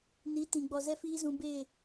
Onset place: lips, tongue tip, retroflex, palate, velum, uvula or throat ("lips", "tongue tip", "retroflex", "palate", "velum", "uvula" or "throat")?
tongue tip